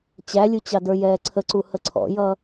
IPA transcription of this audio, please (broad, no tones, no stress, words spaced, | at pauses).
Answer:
t͡ɕælʲut͡ɕɑdə˞ jɛːǀʰəǀu həǀʰɔ̰jʌː